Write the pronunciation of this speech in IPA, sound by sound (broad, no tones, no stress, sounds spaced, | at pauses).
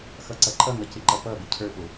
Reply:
x ʌ ǀ ʌ ǃʼ ʌ ŋ ʌ c ɪ ǃ ʌ p ʌ b ɪ cʰ ə˞ p ʊ